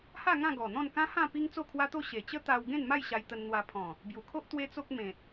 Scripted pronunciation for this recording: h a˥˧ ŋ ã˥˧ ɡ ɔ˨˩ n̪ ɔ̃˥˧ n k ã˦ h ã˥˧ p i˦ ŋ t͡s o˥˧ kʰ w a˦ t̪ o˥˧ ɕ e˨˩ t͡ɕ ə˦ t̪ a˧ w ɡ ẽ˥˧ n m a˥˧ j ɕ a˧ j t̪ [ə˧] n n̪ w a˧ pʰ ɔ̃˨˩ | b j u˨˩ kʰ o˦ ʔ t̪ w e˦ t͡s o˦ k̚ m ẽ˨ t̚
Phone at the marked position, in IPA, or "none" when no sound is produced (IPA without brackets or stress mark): ə˧